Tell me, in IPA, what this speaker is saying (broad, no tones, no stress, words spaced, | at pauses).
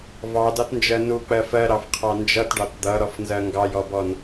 vɑdɑtnd͡ʒɜ nuk͡pɜ fɜɾɑfqʰɑ nd͡ʒʌtɖɑt d̪ʌɾɔfnzɜ ŋɡɑjɔbɔn